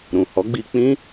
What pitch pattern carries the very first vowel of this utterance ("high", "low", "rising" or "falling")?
low